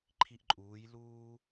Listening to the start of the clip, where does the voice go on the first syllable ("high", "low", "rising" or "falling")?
high